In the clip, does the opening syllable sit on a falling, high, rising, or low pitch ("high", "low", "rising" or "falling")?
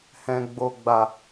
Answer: low